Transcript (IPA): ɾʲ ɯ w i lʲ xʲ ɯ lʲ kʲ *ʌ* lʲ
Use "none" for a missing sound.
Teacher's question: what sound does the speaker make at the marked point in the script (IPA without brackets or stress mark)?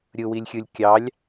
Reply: ɑ